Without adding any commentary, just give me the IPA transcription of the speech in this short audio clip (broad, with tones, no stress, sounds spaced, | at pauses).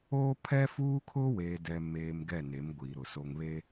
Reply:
oː˦ pʰ ɛ˦ f uː˦ kʰ ʊ˦ w eː˨ d ɛ˨ m eː˨ m ɡ ɛ˦˨ n e˨˦ m ɡʷ iː˨ ɾ ʊ˨ s o˨ ŋ β e˦